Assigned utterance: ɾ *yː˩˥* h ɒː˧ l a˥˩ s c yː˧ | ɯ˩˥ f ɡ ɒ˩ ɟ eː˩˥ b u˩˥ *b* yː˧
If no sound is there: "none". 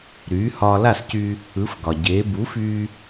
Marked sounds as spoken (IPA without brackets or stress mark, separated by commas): yː˩˥, f